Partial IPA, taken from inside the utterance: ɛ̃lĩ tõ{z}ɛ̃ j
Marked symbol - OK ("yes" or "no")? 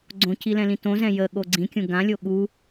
yes